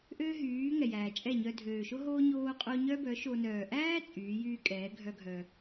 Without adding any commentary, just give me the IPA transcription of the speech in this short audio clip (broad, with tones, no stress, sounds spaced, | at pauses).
ʔ øː˦ ɦ yː˨˦ ŋ ɛ˨ j æː˨ t͡ʃʼ ɛ˦˨ ɲ œ˧ dʱ øː˨ ʃ o˦ ɦ oː˦ ɲ oː˧ qʼ o˧ ɲ œ˦ b œ˨˦ ʃ o˧ n œː˨ ʔ æː˦ t͡sʼ yː˨˦ j yː˦ kʼ ɛː˨˦ ɡʱ œ˦ ɡʱ œ˧